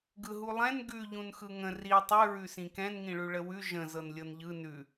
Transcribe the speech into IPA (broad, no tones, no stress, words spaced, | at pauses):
ɡɯɦulˠɛ̃n ɡʉ ʎũnxɯŋə̃ ri tˤʉ ɹʉsĩkɛ̃n ŋĩɭʉɭəwʉ ʒə̃ zɤnlʲɤnʎɯ nʉ